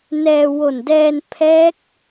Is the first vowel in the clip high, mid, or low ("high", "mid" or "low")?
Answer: mid